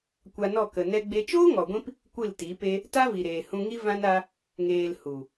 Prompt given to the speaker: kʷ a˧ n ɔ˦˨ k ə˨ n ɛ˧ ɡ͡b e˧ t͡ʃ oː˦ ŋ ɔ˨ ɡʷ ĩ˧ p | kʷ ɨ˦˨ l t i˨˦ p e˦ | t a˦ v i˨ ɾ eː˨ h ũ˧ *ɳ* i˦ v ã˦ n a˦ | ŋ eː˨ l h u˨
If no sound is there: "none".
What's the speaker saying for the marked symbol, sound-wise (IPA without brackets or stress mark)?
ŋ